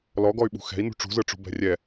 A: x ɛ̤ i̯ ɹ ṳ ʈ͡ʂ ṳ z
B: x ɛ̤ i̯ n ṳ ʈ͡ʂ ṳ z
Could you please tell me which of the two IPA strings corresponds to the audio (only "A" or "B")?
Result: B